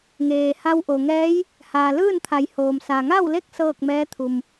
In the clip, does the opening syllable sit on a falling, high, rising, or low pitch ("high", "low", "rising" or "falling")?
low